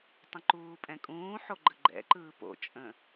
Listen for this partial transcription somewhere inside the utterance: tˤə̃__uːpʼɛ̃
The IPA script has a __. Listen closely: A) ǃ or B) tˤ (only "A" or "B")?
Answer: A